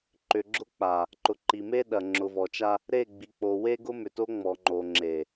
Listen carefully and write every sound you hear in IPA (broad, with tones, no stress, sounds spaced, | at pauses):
ǃ ʏ˨ ɡ͡ǁ ʊ˦ k͡p a˨ | ǃ ʊ˨ ǃ i˨ m e˦ ɗ ɐ˨ ŋ͡ǁ ʊ˨ v ɔ˨ t͡ʃ a˦ | ɾ e˦˨ ɡ͡b i˨ k͡p o˨ w e˦ ɡ ʊ˦ m ʏ˨ t o˦ ŋ͡m ɔ˨ ŋ͡ǃ o˨ ŋ͡ǁ e˨